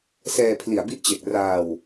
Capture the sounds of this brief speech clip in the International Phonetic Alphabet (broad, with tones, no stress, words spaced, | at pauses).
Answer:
sɛː˧pʰli˨˩a̯bi˦˥ʔt͡ɕe˨˩k̚ raː˧w